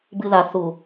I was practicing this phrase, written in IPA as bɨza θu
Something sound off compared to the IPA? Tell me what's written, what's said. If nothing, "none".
z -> ð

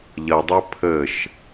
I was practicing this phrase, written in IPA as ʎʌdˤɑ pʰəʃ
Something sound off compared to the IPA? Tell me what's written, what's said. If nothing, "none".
ɑ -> ʌ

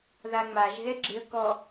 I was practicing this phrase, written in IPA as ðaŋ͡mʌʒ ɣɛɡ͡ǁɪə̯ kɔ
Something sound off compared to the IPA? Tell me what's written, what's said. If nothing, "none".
ʌ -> a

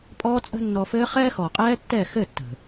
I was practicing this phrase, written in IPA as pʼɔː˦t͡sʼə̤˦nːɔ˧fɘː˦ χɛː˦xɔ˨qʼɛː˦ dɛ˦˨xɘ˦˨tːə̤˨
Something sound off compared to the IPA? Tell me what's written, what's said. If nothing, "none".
d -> tː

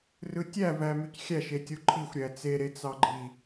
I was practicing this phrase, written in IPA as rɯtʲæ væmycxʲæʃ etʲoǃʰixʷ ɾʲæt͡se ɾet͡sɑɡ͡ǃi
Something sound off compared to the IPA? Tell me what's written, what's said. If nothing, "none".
none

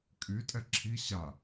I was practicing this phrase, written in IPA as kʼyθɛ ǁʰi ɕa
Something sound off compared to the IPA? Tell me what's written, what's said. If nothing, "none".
θ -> tʼ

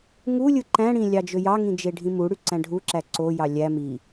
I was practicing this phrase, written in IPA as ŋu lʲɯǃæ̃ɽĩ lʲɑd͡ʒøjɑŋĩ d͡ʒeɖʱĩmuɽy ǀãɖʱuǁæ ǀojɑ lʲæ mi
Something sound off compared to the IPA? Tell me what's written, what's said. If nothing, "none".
ã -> æ̃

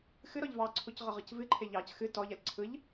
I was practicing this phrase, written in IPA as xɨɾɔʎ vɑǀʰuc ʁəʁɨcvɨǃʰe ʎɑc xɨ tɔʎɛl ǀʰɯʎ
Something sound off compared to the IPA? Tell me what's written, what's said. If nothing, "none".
none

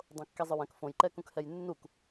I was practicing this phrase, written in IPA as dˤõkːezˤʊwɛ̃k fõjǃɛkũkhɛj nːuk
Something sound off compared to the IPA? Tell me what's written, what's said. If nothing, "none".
none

